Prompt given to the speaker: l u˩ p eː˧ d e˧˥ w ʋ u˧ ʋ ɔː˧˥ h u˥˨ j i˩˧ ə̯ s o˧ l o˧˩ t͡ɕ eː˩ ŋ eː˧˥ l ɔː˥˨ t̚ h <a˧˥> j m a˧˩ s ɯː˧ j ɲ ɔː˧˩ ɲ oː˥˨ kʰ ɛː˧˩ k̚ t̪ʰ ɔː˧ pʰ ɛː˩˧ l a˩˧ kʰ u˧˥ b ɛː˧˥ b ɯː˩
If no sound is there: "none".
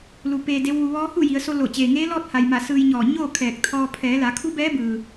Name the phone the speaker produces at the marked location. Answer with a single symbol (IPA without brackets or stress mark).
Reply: a˩